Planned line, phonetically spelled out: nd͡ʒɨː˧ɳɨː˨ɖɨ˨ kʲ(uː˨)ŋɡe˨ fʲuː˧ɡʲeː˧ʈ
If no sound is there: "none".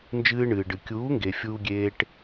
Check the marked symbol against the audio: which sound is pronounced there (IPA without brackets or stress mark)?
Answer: uː˨˦